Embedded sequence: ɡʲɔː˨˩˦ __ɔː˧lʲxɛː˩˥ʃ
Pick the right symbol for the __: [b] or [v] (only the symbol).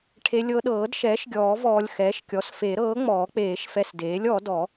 v